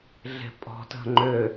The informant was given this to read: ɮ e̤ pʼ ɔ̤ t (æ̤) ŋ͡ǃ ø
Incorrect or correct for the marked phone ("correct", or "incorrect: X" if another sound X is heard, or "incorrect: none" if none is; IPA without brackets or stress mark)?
incorrect: ə̤